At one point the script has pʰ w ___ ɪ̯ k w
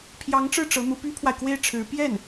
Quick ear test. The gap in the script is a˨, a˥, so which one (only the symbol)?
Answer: a˨